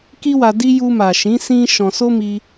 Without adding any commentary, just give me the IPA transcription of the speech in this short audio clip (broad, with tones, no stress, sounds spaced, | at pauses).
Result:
k i˦ w a˧ d i˦ j u˧ m a˨ ʃ ĩ˨˦ s ĩ˦ ʃ ɔ̃˧ s o˦ m i˧